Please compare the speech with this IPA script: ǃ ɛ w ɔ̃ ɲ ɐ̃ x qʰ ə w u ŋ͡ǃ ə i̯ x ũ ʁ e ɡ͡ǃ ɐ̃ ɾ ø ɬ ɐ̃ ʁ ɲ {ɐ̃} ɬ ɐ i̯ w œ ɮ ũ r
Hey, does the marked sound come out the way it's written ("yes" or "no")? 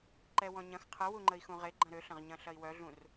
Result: yes